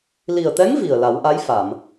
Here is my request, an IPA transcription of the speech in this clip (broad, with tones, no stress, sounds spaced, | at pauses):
l i˨˩ ə̯ t̪ ɛ˧˥ ŋ v i˨˩ ə̯ l a˨˩˦ w ʔ a˧˥ j f a˨˩˨ m